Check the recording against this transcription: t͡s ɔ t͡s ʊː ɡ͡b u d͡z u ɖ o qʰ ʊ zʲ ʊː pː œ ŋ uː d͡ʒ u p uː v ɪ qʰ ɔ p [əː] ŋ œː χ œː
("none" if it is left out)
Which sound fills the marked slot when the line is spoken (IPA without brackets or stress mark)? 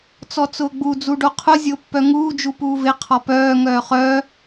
œː